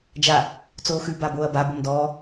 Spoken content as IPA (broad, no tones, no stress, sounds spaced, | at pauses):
d͡ʒ a | t͡s oː x ʉ b a b oː ɐ̯ b a b o m d ɔː